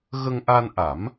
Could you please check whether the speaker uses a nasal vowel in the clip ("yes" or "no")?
no